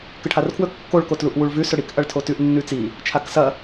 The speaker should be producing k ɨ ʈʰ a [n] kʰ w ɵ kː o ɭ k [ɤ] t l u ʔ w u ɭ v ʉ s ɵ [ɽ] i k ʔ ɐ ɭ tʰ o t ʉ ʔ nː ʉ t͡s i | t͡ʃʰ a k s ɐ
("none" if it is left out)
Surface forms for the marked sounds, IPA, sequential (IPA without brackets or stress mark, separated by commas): r, o, ɽ